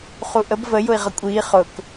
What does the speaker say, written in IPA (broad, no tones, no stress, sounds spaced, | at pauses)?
χ u ʔ ə b v ə j ʊ i̯ ʁ ʌ kʷʼ iː χ ʊ k